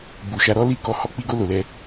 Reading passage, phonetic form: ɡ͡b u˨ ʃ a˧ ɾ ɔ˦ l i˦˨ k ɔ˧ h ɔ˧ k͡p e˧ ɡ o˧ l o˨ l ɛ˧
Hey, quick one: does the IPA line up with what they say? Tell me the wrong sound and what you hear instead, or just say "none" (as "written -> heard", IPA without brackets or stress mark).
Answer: e˧ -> i˧